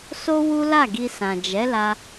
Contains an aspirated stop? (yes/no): no